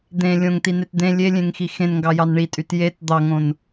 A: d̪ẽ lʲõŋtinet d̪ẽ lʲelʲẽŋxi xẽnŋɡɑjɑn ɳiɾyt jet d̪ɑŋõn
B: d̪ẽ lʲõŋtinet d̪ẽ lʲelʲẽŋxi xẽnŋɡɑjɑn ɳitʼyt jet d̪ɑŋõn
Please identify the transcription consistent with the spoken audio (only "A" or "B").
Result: B